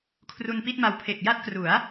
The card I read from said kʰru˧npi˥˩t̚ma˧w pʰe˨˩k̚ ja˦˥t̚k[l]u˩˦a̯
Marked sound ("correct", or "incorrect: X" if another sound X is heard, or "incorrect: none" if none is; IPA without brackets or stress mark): incorrect: r